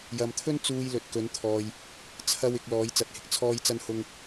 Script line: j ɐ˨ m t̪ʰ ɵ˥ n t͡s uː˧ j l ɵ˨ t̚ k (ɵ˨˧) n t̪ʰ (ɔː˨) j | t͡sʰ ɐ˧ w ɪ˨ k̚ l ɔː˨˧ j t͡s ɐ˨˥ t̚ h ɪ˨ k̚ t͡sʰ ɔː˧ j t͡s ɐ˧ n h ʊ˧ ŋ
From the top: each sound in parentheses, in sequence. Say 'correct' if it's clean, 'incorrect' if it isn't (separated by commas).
correct, correct